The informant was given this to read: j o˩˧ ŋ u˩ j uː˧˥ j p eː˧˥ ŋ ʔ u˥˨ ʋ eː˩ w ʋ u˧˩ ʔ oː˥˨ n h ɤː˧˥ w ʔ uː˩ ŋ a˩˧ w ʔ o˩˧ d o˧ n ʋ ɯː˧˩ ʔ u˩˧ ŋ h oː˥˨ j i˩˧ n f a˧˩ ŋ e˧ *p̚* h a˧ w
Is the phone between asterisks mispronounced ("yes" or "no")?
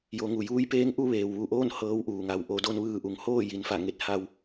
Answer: yes